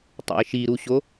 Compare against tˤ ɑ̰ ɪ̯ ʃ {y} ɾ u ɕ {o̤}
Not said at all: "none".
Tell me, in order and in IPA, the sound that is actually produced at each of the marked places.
i, o

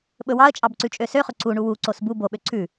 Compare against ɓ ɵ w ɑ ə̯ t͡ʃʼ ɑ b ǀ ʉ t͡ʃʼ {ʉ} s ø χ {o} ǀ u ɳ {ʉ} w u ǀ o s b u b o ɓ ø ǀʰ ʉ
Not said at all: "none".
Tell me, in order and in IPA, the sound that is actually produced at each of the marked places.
ø, ɵ, u

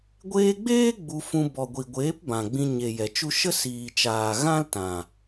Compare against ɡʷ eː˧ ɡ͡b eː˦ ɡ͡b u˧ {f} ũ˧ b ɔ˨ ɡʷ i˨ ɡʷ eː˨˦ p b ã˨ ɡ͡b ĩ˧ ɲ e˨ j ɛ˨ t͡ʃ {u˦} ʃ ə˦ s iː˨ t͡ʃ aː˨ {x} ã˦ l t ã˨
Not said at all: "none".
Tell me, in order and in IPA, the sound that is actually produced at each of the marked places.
f, u˦, ɣ

